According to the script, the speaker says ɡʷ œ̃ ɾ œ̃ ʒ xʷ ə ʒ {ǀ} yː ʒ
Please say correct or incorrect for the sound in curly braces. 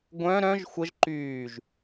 incorrect